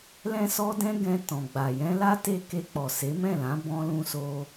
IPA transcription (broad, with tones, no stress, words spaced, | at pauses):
lɛ̃˦sɔ˦dɛ̃˦ɡɛ̃˧ tɔ̃˨ɡ͡ba˨ jɛ̃˧la˦ te˦ke˧k͡pɔ˨ se˨˦mɛ̃˦˨lã˨˦ bɔ̃˦lũ˦so˦